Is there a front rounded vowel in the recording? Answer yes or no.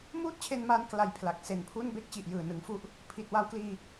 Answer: no